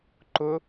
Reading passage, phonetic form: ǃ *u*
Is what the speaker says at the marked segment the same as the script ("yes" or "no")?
no